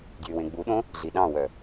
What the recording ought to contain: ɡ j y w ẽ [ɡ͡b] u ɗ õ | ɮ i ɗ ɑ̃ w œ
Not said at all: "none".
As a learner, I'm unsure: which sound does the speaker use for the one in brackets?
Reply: ɡ͡b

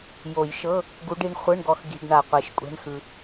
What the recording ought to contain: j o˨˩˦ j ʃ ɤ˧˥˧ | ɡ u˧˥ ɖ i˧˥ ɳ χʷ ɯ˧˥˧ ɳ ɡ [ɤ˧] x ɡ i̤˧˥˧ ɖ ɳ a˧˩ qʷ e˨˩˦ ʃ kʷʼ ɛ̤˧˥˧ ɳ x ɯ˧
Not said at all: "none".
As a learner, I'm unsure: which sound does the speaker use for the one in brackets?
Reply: ɔ˧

